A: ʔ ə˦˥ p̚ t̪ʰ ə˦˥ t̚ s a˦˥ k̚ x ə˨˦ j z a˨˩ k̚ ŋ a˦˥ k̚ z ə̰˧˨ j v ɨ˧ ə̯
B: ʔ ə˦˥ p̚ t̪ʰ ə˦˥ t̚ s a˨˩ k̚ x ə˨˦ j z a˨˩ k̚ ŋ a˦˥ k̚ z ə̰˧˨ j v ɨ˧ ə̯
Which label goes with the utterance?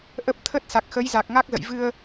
B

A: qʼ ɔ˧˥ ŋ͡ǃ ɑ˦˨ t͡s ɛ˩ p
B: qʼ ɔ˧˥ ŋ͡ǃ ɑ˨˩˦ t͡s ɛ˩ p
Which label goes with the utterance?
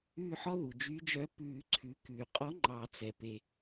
B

